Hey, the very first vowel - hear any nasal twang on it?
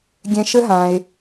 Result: yes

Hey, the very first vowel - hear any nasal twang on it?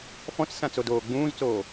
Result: yes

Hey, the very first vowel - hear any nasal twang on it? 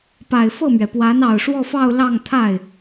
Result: no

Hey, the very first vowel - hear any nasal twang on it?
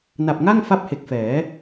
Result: no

